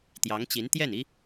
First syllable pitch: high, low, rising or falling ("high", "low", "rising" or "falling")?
rising